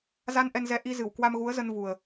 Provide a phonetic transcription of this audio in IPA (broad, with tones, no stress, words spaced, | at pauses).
za˧nʔɛ˧nzɛ˨˦ ʔi˧zɨ˧˩w kwa˧mɣu˨˦ə̯zə˧n vu˨˩ə̯